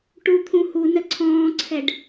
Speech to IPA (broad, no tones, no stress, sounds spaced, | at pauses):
ʈ u t̪ʰ ũ h u n ə ǀʰ ɔ̃ː ǀʰ ɛ ɖ